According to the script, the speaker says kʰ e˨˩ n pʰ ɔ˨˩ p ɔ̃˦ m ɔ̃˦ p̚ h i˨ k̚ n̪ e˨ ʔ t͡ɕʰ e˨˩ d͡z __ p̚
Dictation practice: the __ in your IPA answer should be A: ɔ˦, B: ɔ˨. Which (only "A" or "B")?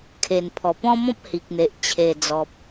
B